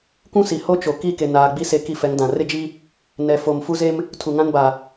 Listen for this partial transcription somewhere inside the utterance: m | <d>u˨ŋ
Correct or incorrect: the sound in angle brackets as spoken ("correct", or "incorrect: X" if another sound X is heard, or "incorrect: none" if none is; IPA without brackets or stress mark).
incorrect: tʰ